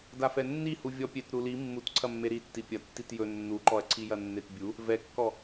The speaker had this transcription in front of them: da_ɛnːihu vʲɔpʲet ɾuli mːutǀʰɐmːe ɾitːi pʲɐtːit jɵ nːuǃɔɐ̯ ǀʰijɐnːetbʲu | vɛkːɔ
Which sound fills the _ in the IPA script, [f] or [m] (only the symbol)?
f